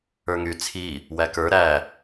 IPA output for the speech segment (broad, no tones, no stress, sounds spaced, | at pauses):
ə˞ ŋ y t͡sʰ i | w æ k ə˞ ɾ æ